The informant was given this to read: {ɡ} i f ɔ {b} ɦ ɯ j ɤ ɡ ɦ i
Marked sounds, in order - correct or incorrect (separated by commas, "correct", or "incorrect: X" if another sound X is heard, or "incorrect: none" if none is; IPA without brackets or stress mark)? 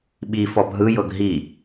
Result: incorrect: ɓ, correct